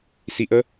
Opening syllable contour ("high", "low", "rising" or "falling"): low